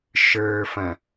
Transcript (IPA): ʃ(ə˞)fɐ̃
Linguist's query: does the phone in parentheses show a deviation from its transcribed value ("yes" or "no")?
no